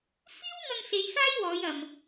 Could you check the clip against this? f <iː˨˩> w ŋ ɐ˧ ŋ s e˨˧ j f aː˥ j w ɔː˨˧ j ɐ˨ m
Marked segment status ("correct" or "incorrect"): incorrect